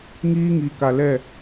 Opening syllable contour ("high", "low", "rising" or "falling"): high